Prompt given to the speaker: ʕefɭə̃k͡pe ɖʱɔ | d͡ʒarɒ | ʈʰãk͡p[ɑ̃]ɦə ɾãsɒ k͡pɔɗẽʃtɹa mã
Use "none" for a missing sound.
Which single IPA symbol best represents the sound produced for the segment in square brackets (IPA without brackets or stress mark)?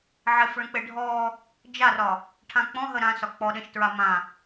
ɔ̃